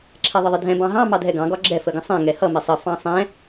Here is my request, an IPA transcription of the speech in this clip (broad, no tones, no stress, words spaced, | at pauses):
ǁʰɛðˤəðˤɪdʱɛ̃ bɑ̃ɦɑ̃ mɑdʱɛɡɑ̃ ɡɒɡ͡ǁɛ fəɡə̃sˤɛ̃ ŋɛhʌ mɪsˤə fɑ̃sˤɛ̃